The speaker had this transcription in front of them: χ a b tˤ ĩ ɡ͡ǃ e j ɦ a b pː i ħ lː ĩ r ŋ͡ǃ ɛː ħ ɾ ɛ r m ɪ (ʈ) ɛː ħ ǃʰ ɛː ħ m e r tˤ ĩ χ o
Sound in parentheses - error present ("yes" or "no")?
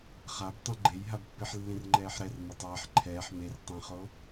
yes